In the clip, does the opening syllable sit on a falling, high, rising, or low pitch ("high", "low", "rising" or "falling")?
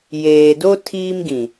low